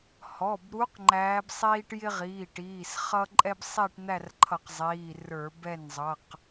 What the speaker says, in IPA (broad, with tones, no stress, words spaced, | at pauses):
hɔ˩˧˩bɾu˧˥q ŋ͡ǃæː˧˥bsˤiː˥ʈ jɪ˥ʁiː˩˧˩ ʈiː˩˧˩sχʌ˥ ǃʼɛ˥bsˤi˥˧ʈn̪æ˥˧rǃʰʌ˧˩˧q zˤiː˩˧˩ rə˞˧˩˧bɛ˥˩nzˤʌ˩˧˩q